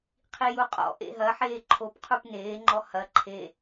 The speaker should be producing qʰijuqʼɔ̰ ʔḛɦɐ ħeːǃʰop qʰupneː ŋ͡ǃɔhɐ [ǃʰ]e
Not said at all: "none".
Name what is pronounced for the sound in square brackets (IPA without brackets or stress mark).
ǃʰ